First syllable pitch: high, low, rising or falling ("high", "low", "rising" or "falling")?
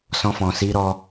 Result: high